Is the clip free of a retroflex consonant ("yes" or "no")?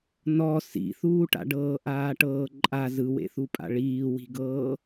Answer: no